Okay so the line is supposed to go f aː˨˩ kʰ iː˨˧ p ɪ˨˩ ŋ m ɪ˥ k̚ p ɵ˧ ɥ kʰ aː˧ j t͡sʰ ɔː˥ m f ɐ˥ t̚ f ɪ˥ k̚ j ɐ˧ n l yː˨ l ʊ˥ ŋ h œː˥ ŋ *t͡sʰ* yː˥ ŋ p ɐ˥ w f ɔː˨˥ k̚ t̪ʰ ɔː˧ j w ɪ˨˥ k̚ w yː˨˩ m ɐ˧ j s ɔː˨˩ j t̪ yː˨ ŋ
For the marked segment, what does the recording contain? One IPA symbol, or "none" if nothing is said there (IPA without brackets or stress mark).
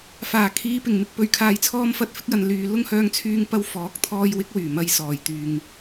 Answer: t͡sʰ